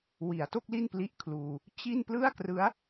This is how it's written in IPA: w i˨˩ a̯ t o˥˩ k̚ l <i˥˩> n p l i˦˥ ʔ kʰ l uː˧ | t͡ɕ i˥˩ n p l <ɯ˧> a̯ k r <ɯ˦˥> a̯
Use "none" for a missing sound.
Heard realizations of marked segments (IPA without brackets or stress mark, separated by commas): i˥˩, ɯ˥˩, ɯ˦˥